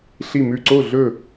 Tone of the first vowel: falling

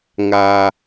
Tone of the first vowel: low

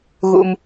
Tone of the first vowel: low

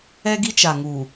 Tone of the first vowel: high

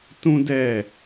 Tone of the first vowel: high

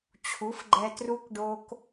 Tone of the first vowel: rising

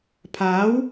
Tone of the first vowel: rising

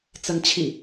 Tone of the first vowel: rising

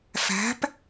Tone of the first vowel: rising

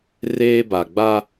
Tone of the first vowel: high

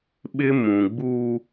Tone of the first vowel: high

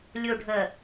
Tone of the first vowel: low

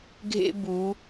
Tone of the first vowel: high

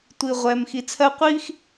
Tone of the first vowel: low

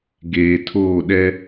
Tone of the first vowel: low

